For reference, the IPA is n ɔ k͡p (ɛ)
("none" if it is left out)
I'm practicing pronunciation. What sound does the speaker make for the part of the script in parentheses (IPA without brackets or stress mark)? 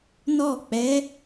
ɛ